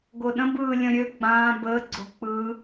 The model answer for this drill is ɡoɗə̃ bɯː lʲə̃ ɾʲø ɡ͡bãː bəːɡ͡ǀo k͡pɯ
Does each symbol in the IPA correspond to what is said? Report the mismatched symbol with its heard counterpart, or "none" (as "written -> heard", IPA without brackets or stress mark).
none